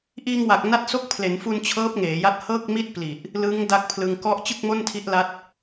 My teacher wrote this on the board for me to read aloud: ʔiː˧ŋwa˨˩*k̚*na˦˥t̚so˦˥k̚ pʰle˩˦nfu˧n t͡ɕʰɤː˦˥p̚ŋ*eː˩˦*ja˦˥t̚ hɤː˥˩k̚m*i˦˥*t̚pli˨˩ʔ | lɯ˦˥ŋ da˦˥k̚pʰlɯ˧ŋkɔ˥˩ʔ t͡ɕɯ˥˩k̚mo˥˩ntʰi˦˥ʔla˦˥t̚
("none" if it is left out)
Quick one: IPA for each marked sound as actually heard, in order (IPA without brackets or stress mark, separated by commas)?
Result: k̚, eː˩˦, i˥˩